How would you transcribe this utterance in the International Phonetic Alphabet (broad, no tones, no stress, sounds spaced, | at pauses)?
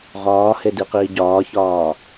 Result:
ʁ ɒː h e d i q iː ɟ ɒː ç ɒː